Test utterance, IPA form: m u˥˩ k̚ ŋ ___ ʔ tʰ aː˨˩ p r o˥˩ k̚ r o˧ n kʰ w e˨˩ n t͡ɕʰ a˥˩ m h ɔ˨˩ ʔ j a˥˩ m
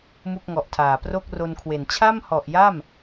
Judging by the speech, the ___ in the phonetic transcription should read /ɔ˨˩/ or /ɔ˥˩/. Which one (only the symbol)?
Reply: ɔ˨˩